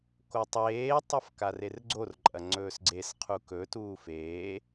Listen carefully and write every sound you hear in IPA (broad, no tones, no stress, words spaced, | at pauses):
kotˤeːtˤɐf karerɡ͡ǀorǃʼɐ ŋ͡ǀɵːsɡ͡ǀesqʰu kɵtuːf eː